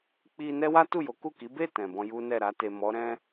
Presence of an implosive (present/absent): absent